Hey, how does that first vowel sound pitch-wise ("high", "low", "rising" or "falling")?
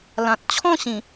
low